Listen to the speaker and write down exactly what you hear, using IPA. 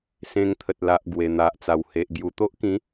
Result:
s ẽ˧ ŋ t̪ʰ ə˨ t̚ l a˨ ʔ ɡ w e˨˩ n̪ a˨ ʔ t͡s a˨˩ w h e˨ ʔ ɡ j u˨˩ t̪ o˦ ʔ k ĩ˨˦

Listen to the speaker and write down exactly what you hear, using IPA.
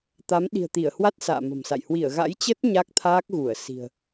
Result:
t̪ a˨˦ m ɗ i̤˨˩ ə̯ t̪ i˧˩ ə̯ h w a˦˥ t̚ s a̰ː˧˨ m ə̤˨˩ m s a̰˧˨ j h w i˧˩ ə̯ ɣ a̰˧˥ j t͡ɕ ə˦˥ t̚ ɲ a˦˥ k̚ t̪ʰ aː˦˥ k̚ ɣ u˧˩ ə̯ s i̤˨˩ ə̯

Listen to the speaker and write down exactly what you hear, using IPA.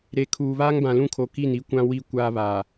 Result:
ɾ e˨ kʰ uː˨ β aː˦ ŋ b ã˨ l ũ˦˨ kʰ o˨ k i˦˨ n i˦ kʷ ã˦ w i˦˨ kʷ aː˦ β a˨

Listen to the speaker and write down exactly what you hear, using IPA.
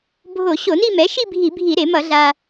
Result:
bʱ o˧˩˧ ɕ o˧˩˧ n i˥˧ m ɛ˩˥ ʃ i˥˧ bʱ i˧˩˧ bʱ i˧˩˧ ɾ e˧˩˧ m ʌ˧˩˧ ɮ a˧

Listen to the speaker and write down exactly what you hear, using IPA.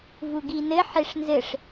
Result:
v u ɡ i n ɘ ħ e ʂ n z ɘ ʂ

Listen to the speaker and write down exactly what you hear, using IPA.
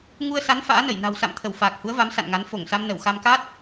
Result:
ŋ u˧ ə̯ s a˨˦ n f a̰ː˧˥ n ə˧˩ j n a̤˨˩ w s a̰˧˨ m t̪ʰ ə˧˩ w f aː˨˩ k̚ h u˨˦ ə̯ v a˨˦ m s a̰˧˨ n ŋ a˨˦ n f o˧˩ ŋ s a˧ m n ə˧˩ w x a˧ m k a˦˥ t̚

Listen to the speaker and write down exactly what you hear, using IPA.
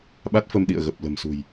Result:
ɓ a˦˥ t̚ f ə˧ m ɗ ḭ˧˨ ə̯ ɣ ə˨˩ p̚ l ə̤˨˩ m s ṳ˨˩ j

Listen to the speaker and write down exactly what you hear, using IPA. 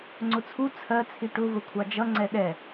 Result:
ŋ͡ǀ ʊ t͡sʰ u t͡sʰ ɜ t͡sʰ i ʈ ʊ v ə kʷʰ ɑ d͡ʒ ʌ ŋ͡ǀ ɛ ɗ ɛ

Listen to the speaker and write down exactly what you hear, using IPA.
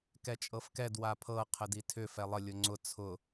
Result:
k ɛ t͡ʃʼ ɤ f k ɛ d w a pʰ ɤ qʰ ə d i tʰ ʏ f ɛ lˠ ə lʲ ʊ ŋ͡ǀ ʊ t͡sʰ ʊ

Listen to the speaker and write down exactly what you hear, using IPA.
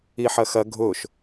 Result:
i ħ ɐ x ɐ ɡʱ ʊ ʃ

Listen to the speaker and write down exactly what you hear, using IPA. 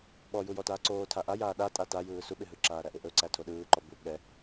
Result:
ɓ ɔ j u j ɔ t aː ǀ oː tʰ a ʔ a j aː ɗ a tʼ a t a j ɯː s u ɓ ɪ ɦ ɯ ǁ aː ɾ æ ʔ ɪ ʔ ɵ ǀ æ tʰ o ɗ ɯː ǃ ɔ b u ɠ ɛ

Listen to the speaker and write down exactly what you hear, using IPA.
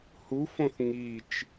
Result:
h u f õ θ ŋ i t͡ʃ

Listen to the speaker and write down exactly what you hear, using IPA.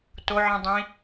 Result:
t o ʕ ĩ dˤ ĩ

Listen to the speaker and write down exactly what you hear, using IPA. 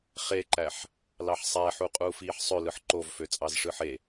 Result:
χ e ǃ æ ħ | l ɑ ħ sˤ æ ħ u qʼ uː f iː ħ sˤ ø l ɯ ħ ǃ o v f ø t͡sʼ ɑ z ʂ ɯ ħ e

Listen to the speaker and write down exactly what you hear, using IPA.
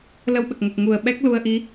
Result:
l ə˧ w ɓ ə˨˩ k̚ ŋ ə˨˩ k̚ ŋ u˨˩ ə̯ ɓ ɛ˦˥ k̚ l u˧ ə̯ ʔ i˧˥

